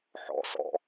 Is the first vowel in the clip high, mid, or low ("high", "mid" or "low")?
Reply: mid